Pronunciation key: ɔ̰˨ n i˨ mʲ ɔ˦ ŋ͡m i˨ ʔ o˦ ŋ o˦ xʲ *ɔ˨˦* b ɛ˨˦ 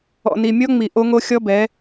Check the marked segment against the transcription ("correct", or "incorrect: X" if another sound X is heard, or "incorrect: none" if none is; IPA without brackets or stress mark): incorrect: ɔ˦